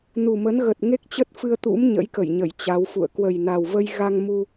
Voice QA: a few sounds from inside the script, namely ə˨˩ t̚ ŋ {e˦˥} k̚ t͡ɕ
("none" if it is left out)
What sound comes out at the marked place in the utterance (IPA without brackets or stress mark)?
e˦˥